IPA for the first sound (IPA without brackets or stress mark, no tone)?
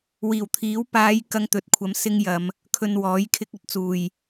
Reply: w